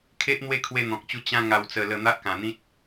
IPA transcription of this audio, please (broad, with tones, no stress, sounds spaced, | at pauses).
kʰ e˦ ʔ n̪ w e˥˧ kʰ w e˧ n̪ ɔ̃˨ k̚ t͡ɕ u˧ t͡ɕ ã˦ ŋ a˧ w t͡s ə˧ l ə˧ n̪ a˦ ʔ k ã˧ n̪ ĩ˦ t̚